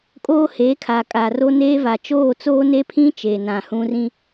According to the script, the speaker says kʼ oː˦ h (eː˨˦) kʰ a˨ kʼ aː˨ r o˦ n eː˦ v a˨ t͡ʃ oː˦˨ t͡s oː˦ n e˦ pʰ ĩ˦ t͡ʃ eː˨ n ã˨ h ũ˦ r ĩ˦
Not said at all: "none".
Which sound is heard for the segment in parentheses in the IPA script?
eː˨˦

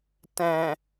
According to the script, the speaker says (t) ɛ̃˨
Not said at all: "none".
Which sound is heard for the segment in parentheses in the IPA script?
t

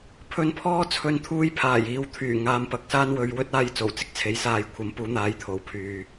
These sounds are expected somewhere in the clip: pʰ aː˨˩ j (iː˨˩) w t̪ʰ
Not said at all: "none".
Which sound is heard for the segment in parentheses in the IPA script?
iː˨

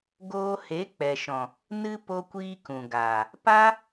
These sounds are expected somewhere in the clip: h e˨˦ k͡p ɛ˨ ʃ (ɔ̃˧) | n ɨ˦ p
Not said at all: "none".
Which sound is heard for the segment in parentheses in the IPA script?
ɔ̃˨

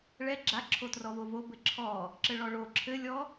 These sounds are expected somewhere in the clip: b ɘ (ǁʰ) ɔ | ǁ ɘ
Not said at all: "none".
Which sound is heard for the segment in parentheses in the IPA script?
ǁʰ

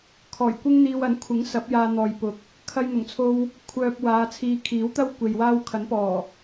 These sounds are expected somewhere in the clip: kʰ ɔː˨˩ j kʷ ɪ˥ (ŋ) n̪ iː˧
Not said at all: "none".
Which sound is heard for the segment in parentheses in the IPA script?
ŋ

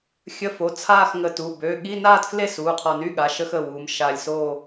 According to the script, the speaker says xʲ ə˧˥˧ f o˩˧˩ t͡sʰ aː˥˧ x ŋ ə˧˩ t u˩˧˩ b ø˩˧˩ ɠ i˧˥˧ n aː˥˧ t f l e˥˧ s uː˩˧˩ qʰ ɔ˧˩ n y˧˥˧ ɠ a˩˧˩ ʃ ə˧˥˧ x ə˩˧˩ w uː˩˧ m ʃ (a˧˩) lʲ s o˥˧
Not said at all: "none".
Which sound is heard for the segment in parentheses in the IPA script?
a˧˩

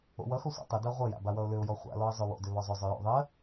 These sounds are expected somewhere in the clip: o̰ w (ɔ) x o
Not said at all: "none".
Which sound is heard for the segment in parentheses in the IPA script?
ʌ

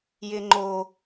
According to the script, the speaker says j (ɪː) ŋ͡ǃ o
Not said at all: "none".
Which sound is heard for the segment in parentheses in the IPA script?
ɪː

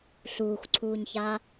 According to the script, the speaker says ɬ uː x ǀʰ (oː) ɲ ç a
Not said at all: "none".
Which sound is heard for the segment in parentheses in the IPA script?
uː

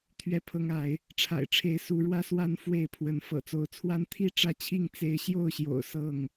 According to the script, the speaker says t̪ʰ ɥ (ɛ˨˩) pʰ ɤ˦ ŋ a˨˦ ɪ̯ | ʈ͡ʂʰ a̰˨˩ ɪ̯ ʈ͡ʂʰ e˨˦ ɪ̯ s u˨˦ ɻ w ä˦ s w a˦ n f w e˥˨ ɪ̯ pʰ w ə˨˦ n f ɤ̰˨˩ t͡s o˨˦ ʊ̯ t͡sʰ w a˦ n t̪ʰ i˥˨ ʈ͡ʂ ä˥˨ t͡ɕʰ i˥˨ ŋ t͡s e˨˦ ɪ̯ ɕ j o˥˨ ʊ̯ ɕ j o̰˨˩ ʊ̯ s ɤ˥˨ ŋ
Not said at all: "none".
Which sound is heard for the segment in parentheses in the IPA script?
ɛ˥˨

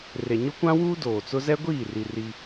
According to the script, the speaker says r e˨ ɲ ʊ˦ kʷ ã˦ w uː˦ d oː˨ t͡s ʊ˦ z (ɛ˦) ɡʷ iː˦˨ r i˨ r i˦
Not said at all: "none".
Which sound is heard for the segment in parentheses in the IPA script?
ɛ˦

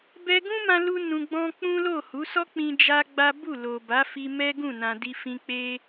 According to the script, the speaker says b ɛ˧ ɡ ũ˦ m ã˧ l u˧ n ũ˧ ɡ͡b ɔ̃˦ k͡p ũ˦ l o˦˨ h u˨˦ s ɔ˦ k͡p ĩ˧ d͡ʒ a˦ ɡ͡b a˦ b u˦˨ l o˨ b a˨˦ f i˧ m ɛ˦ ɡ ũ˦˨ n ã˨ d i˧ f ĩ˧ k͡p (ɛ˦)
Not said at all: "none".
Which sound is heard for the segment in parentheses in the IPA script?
e˦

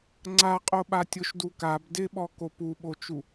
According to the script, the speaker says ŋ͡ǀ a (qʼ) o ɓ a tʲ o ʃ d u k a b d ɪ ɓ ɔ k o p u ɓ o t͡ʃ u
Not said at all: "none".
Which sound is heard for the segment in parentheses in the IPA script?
qʼ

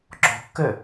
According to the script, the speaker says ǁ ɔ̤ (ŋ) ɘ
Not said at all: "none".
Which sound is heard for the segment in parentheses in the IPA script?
kː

